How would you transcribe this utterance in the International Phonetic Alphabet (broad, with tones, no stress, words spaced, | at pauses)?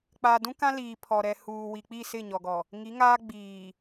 k͡pa˨dũ˦ kã˦liː˨ pʰɔ˨ ɾɛ˨ huː˨wi˨ k͡pi˦˨sɪ˦˨ɲɔ˨ɡɔ˨ | ŋi˨˦ŋaː˦ ɡ͡biː˨